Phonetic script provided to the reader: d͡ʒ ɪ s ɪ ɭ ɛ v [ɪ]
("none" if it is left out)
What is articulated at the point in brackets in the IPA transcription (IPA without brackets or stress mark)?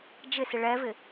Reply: ɪ